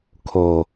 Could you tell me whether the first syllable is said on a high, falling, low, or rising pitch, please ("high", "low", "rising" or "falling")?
low